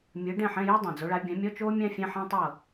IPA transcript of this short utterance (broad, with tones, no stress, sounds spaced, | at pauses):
mʲ ɯ˨˦ ɖ ɛ̃˥˨ ħ ɛ̃˧˥˧ j i˥ dˤ ã˩ d͡z o˨˦ ɭ a˨˦ bʲ ã˨˦ mʲ ɔ˧˥˧ t͡ʃ oː˥ mʲ ã˥ fʲ ɛ̃˧˥˧ ħ ã˥ tˤ ɤ˥˨